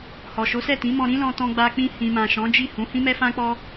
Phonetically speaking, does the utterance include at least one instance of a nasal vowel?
yes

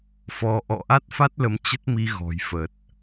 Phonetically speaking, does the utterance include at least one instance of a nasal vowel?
no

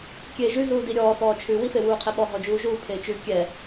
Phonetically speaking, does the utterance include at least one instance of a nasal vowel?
no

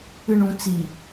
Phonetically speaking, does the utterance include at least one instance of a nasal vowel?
yes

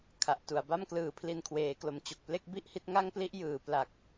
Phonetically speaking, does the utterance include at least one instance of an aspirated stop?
yes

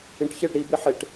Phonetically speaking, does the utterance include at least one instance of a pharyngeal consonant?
yes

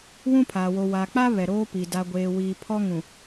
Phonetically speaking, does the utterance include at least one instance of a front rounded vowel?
no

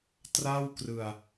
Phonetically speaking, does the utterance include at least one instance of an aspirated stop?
no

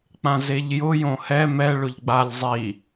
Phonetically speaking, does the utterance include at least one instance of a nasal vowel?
yes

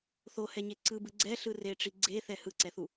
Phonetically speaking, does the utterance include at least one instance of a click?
yes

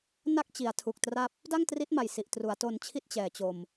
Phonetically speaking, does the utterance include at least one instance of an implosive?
no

